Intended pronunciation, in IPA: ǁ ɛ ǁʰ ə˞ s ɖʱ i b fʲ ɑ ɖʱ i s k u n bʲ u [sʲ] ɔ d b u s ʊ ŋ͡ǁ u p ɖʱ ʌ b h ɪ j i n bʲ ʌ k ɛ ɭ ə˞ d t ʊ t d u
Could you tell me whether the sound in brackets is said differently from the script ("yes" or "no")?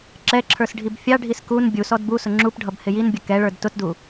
yes